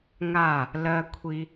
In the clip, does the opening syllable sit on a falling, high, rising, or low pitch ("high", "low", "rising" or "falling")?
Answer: falling